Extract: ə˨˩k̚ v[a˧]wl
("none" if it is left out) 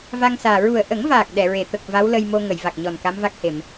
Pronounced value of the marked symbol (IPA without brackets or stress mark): a˧˥